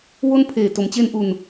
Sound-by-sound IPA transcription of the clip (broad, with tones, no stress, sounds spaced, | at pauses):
w o˦˥ n pʰ eː˨˩ t o˩˦ m t͡ɕ e˧ n ʔ u˨˩ n